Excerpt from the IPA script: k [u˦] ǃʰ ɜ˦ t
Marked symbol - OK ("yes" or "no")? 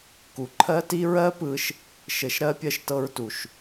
no